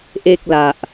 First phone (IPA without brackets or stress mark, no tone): ʔ